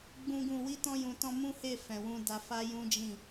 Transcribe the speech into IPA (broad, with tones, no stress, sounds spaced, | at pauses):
ɡ͡b ũ˦ ɡ ũ˦˨ w i˧ t ɔ̃˧ j ũ˨ t ɔ̃˧ m ũ˦ h e˦˨ f ɛ̃˨ w ũ˧ d a˧ f a˦ j ũ˦ d͡ʒ ĩ˦˨